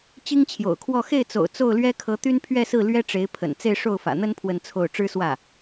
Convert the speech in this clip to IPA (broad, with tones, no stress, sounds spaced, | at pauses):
t͡ɕ i˥ ŋ t͡ɕʰ j o̰˨˩ ʊ̯ kʰ w ɔ˥˧ x e˥˩ ɪ̯ t͡s o̰˨˩ ʊ̯ t͡s o˥˩ ʊ̯ l ɥ ɛ˥ kʰ ɤ˧˥ t̪ y˥ n pʰ ɥ ɛ˥˧ s ɹ̩˥˩ l ɥ ɛ˥ ʈ͡ʂ e˧˥ ɪ̯ pʰ ə̰˨˩ n t͡s e˥˧ ɪ̯ ʂ o˥˩ ʊ̯ f ä̰˨˩ n̪ ə˥ n pʰ w ə˥˧ n t͡sʰ o˥˩ ʊ̯ ʈ͡ʂ ɻ̩˥ s w ä˥˩